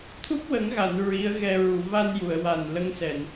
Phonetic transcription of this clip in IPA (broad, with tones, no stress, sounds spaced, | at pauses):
t̪ʰ u˦˥ p̚ w ə˨˩˦ ŋ ɣ a˨˩˨ n ɹ i˧˥ ə̯ ɣ ɛ˧ ɹ u˨˩˨ v a˧ n j u˨˩˨ ə̯ w a˨˩ n l ə˧˥ ŋ s ɛ˨˩˨ n